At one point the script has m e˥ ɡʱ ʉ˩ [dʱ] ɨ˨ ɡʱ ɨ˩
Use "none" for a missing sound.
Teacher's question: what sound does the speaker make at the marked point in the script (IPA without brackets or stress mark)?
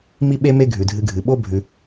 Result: dʱ